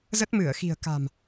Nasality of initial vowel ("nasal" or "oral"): oral